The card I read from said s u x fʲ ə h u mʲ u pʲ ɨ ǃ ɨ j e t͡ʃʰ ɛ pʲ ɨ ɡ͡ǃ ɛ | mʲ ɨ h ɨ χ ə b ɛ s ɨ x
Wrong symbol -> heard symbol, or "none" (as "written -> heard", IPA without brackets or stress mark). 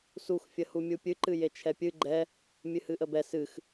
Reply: χ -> ʔ